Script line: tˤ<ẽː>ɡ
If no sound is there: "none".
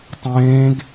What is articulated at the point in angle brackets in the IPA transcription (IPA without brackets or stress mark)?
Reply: ẽː